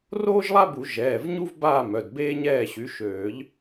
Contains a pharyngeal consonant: no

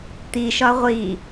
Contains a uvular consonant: yes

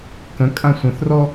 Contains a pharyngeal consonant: no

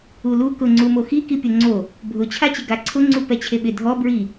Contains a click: yes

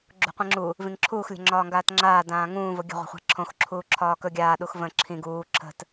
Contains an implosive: yes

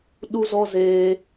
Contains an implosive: yes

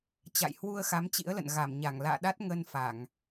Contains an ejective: no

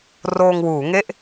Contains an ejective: no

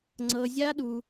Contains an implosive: yes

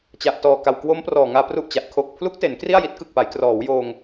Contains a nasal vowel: no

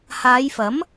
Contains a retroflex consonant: no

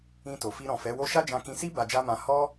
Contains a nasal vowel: yes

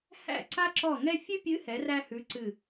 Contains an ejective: no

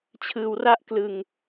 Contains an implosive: no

